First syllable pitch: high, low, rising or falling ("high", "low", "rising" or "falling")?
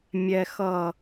low